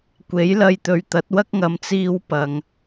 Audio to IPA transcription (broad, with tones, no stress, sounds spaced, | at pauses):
kʷ e˨˥ j l ɐ˧ j t̪ ɵ˨ ɥ t̪ ɐ˨˥ t̚ w ɐ˥ k̚ ŋ ɐ˨ m t͡s iː˥ w p ɐ˨ ŋ